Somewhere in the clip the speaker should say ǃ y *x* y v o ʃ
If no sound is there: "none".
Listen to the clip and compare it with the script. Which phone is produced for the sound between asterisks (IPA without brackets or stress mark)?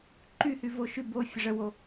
h